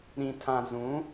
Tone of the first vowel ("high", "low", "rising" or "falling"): low